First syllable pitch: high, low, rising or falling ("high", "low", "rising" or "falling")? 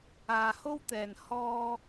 low